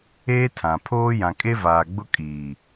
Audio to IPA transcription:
eː˦tʰã˨pʰoː˦ jã˨kʼe˦vaː˨ ɡ͡bʊ˦ kʼiː˨

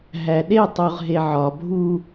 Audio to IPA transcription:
ɦæɗetˤuʁ ɦeʕɒbʱu

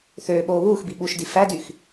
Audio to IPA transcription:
θøː ɓoːβuːxbi ɓuʃdi fædyx

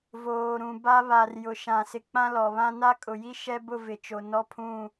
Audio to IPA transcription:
voː˨ɾũ˨ba˦ βa˨r jʊ˨ ʃã˨ sɪ˨k͡pã˦lɔ˨βã˦ na˦kʼʊ˨ji˦ ʃɛ˦bʊ˦˨ vɪ˨t͡ʃo˨ nɔ˦pʰũ˦˨

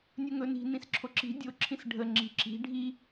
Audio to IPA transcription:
nʲɵŋɵni̤ nĩsǁʰoǁi̤ dʲoǁʰĩs ɖʱəŋ͡ǁi̤ ǁi̤ ɖʱi

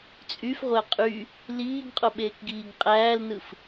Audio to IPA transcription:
t͡sʼyfʁʷæ qʼy | liːɡqʼoɓeːkɡiːɡ qʼæːlnɯf

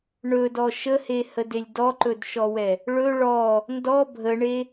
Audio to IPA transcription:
ɳɵdɔ ʃəhehədelʲ dɔǃɵdʃɔwɛ | ɭɵ ɭɔ | ndɔ bʱəɳe

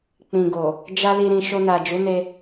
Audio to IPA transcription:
k͡pĩ˨ɡo˨ | d͡ʒa˦li˧ ɾĩ˨ ʃo˧na˨d͡ʒu˨˦ne˧

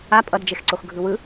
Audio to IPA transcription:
a pʼʌdd͡ʒexǀox ɡʱɯwɯ

